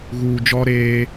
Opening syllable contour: low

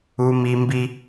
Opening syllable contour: high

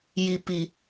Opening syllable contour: low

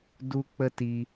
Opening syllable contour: high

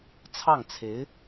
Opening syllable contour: falling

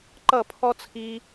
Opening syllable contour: falling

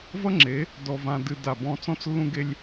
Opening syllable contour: high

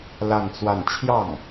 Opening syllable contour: falling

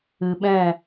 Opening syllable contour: low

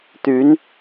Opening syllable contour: rising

